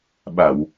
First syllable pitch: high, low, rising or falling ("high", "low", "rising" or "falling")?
low